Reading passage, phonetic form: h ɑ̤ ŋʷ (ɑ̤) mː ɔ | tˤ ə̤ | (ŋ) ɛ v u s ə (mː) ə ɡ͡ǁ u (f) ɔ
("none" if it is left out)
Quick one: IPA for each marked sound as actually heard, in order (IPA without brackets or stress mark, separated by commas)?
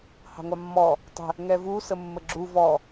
ɑ, ŋ, mː, v